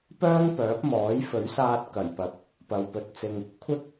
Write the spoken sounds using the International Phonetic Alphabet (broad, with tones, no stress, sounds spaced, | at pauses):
p œː˥ ŋ p œː˨˥ p̚ m ɔː˨˥ j f ɵ˨˥ ɥ s aː˧ t̚ k ɐ˨˩ j p ɐ˨˥ p̚ | p ɐ˨ w p ɵ˨˥ t̚ t͡s ɪ˧ ŋ | kʷʰ ɪ˥ k̚